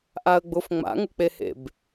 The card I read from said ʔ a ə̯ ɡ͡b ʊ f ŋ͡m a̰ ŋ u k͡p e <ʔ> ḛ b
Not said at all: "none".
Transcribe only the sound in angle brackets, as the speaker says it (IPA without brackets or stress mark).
h